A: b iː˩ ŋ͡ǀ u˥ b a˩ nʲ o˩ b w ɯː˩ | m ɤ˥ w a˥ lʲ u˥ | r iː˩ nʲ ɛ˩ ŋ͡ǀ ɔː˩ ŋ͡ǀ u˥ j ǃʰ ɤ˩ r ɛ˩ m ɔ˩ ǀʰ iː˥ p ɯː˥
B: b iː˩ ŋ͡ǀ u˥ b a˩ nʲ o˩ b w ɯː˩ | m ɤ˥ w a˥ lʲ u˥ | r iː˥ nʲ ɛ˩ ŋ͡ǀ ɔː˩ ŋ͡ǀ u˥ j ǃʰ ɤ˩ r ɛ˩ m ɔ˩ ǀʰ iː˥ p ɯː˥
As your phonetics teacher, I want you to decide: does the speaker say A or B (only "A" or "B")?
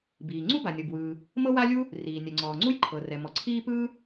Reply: A